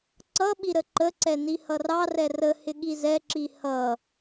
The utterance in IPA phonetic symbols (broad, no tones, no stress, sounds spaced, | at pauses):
ǀ ʌ ɓ i ɾ ə ǃ ə ǀ ɛ n i h ʌ r ɑ r ɛ r ə h ɪ ɠ i z ɛ ǁ i h ʌ